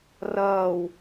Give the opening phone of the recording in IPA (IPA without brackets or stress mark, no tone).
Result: r